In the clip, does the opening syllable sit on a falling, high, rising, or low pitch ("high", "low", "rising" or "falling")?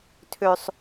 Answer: high